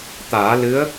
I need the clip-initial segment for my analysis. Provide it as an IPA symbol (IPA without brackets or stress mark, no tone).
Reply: t̪